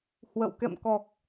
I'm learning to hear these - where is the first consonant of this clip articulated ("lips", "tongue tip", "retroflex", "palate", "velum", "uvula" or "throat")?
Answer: throat